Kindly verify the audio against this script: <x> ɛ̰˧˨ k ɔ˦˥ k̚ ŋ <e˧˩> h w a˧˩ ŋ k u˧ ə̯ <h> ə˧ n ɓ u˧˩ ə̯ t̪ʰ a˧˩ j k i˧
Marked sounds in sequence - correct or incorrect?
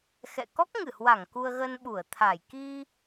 correct, incorrect: ɨ˧˩, incorrect: ɣ

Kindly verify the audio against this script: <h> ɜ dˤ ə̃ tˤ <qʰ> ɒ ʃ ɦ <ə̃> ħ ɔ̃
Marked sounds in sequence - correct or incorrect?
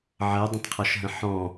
incorrect: ʕ, correct, correct

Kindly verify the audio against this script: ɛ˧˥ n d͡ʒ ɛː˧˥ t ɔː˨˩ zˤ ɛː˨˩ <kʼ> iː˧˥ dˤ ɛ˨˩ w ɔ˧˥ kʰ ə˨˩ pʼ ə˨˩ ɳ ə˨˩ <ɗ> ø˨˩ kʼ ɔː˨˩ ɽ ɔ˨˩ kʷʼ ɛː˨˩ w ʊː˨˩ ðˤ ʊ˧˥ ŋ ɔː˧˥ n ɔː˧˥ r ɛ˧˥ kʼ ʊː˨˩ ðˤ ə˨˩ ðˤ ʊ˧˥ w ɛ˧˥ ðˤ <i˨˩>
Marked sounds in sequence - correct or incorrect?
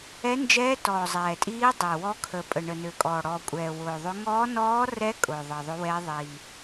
incorrect: tʼ, incorrect: n, correct

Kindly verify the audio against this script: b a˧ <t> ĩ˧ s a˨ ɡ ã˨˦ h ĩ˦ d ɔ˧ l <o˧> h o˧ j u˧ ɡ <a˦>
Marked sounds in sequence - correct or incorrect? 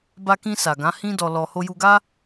incorrect: k, incorrect: ɔ˧, correct

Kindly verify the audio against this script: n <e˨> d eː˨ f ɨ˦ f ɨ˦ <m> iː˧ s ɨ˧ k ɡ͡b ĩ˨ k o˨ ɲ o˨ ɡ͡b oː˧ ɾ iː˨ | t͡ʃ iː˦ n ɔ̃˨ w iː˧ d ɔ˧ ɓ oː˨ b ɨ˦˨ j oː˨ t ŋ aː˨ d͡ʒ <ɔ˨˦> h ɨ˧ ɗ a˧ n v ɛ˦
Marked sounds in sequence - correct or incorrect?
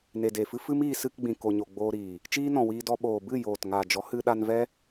correct, correct, correct

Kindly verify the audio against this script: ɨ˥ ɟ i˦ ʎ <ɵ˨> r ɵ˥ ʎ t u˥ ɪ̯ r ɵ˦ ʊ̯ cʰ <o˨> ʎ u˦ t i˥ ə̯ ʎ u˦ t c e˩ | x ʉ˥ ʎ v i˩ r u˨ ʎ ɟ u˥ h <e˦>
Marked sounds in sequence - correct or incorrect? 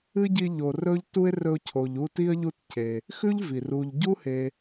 incorrect: o˨, correct, incorrect: e˨

